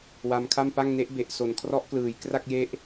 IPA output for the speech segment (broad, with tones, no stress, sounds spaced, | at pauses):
w a˧ m kʰ a˥˩ m p a˥˩ ŋ n e˦˥ ʔ b e˨˩ ʔ s o˨˩ n kʰ r ɔ˦˥ ʔ k l ɯː˩˦ j k r a˥˩ k̚ j e˦˥ ʔ